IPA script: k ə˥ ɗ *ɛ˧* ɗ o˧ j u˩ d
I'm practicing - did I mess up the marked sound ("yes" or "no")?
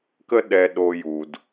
no